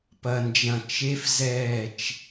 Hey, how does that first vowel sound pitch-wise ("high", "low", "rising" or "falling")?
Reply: low